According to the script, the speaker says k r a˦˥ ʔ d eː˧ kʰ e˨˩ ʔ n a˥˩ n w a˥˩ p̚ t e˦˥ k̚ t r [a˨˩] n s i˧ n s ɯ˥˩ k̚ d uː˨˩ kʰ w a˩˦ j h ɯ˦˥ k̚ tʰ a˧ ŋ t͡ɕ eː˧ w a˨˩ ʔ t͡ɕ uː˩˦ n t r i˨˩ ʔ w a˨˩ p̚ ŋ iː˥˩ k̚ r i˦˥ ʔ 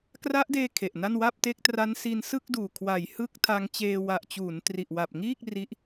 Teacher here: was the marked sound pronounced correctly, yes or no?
no